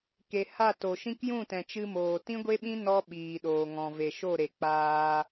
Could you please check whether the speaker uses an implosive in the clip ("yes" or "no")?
yes